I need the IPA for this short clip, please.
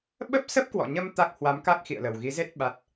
ɓ ə˦˥ p̚ s ə˦˥ p̚ k w ɔ̰˧˨ ɲ ə˧ m t̪ a˦˥ k̚ h w a˨˦ m k a˦˥ k̚ x ḭ˧˨ ə̯ l ə˨˩ w ɣ i˨˦ z e˦˥ t̚ ɓ a˦˥ t̚

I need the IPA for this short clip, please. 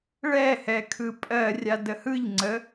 ɭ ɛ h ɛ kʰ ɯ pʼ ɜ rʲ a d ə h ɯ ʎ ŋ͡ǀ ə

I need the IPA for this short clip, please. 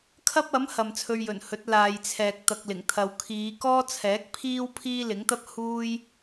kʰ ɐ˥ p̚ ɐ˨˥ m h ɐ˨ m t͡sʰ ɵ˧ ɥ j ɵ˨˩ n h ɵ˨˥ t̚ l aː˨ j t͡sʰ ɛː˨ k̚ t̪ ɐ˧ k̚ l ɪ˨˩ ŋ t̪ʰ ɐ˧ w kʰ iː˨˧ k ɔː˥ t͡sʰ ɛː˨˥ k̚ pʰ iː˥ w pʰ iː˥ l ɪ˨˥ ŋ t̪ ɐ˥ p̚ h uː˥ j

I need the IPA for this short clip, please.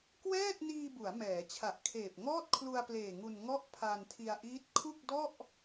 k w ɛː˥˩ t̚ n iː˧ b u˩˦ a̯ m ɛː˩˦ t͡ɕʰ a˨˩ ʔ kʰ eː˨˩ p̚ ŋ ɔː˥˩ t̚ kʰ l u˧ a̯ p l eː˨˩ ŋ u˧ n ŋ ɔ˥˩ ʔ pʰ a˧ n tʰ i˧ a̯ ʔ iː˦˥ t̚ kʰ u˥˩ k̚ d ɔ˥˩ ʔ

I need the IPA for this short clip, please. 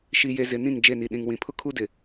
ʃ i˨ j e˨ z ɪ˨ n ĩ˦˨ ŋ d͡ʒ e˦˨ n i˨ ɗ ĩ˨ ŋ w ĩ˨ pʰ ʊ˦ kʰ u˦ d ɪ˨

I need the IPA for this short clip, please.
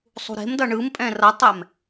sˤ ṳ ɾ e̤ m d ʌ ɳ ɯ m pʼ ɛ̃ r ʌ tˤ ɛ m

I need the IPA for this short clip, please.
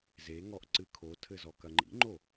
z e ŋ ɔ ʔ ǀ ɨ kʰ o tʰ ɘ z ɔ k ɐ ŋ͡ǃ ḭ ŋ͡ǃ o

